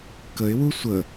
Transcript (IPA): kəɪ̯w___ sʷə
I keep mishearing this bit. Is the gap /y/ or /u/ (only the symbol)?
u